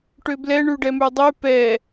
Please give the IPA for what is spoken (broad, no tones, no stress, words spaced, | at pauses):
ʈøblɛ ɳʉɖɛmʉdˤʉ pɛ